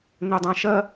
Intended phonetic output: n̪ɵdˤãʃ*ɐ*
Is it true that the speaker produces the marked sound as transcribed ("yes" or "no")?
yes